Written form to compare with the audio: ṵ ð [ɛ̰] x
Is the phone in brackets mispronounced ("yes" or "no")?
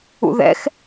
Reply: no